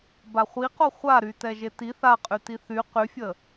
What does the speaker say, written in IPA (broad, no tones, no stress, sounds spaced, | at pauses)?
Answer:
b a χʷ i q o χʷ a ɾ y t ɛ ʒ e t i θ a qʼ y t i θ y q y fʲ ə